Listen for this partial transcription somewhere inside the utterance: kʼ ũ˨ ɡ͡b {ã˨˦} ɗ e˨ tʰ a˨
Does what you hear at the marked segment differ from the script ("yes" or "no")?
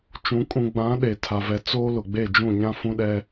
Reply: no